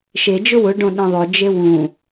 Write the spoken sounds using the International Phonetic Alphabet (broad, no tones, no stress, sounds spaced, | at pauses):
ʃ e d͡ʒ ʊ w ʊ ɖ õ ɗ ẽ ðˤ ʊ d͡ʒ e w ũ